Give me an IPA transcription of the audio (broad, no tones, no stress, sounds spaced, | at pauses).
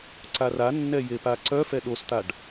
ǀ a r a nː ɛ j e p a ǀ œ f ɛ ɗ o s t̪ a ɖ